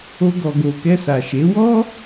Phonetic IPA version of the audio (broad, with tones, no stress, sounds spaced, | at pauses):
o˧ ɡ ɔ˨ ɡ o˨ k ɛ˧ s a˨ ʃ e˨˦ w ɔ˦